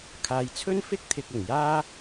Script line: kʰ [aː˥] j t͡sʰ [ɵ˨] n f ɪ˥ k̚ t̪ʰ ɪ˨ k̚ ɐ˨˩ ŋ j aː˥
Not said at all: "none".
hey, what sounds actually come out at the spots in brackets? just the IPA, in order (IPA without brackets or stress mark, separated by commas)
aː˨, ɵ˥